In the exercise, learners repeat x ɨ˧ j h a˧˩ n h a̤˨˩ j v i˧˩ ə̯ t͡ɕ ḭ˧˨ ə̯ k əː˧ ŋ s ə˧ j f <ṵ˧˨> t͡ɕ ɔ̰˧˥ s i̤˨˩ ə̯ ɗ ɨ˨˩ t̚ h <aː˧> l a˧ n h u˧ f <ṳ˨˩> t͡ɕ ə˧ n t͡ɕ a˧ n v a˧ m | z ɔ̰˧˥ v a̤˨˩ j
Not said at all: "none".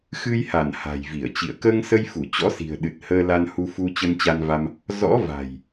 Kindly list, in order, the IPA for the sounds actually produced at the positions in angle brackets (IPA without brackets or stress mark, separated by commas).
u˧˩, əː˧, u˧